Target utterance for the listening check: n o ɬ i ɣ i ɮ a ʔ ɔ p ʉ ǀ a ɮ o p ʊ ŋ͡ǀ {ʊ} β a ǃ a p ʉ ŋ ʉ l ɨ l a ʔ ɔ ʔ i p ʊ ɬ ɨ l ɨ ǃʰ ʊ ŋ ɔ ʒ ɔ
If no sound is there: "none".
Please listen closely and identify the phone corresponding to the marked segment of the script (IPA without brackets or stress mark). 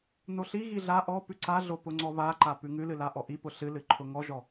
ɔ